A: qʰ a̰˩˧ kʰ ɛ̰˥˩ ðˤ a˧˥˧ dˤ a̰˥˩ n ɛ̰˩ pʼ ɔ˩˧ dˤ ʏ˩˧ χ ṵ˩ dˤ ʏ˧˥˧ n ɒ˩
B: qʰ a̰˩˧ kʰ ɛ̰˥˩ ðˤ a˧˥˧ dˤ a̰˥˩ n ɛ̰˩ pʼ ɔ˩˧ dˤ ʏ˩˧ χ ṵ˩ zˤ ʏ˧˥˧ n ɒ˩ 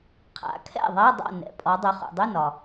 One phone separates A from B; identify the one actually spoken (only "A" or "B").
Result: A